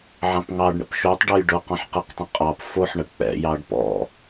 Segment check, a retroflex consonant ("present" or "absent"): present